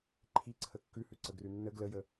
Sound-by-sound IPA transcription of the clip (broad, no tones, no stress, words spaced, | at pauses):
ǃʰiǀʰə kːʉhʉǀəɡrʉ nːə ɡləjə